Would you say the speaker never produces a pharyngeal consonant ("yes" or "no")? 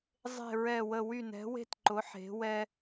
no